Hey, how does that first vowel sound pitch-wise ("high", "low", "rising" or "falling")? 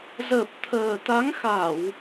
low